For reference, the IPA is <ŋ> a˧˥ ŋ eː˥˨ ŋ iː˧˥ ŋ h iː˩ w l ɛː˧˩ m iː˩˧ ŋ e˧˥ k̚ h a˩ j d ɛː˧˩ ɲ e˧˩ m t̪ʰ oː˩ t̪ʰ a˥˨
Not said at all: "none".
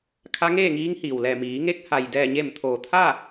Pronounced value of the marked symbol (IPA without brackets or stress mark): kʰ